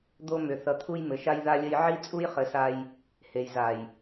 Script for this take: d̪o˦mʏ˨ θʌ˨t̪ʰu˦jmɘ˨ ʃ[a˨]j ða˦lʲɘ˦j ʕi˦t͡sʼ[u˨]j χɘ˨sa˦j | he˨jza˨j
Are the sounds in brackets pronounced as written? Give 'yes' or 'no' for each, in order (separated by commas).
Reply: no, no